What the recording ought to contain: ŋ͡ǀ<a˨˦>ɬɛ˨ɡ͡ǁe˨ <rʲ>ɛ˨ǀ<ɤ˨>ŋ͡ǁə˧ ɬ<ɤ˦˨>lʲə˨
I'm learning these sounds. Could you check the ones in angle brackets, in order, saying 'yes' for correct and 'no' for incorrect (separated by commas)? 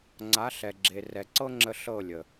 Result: yes, no, no, yes